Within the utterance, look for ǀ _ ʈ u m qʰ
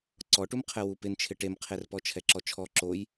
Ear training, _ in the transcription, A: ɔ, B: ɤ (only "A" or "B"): A